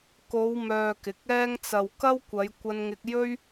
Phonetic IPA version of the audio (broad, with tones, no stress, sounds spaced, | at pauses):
k o˨˧ w m œː˨ k ɪ˨˥ k̚ ɛː˥ ŋ t͡s ɐ˨ w k ɐ˥ w kʷ ɐ˨˧ j kʷ ɐ˧ n ŋ ɪ˧ k̚ j ɵ˥ ɥ